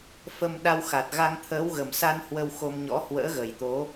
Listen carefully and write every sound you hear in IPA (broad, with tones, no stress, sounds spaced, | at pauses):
f ə˧ m ɗ a˧ w x a˨˩ t̚ ɣ a˧ ŋ t̪ʰ əː˨˦ w ɣ ə˨˩ m s a˧ n h w ə˧ w x o˧ m ɲ ɔ̰˧˥ h w ə̰ː˧˥ ɣ ə˨˩ j t̪ o˨˦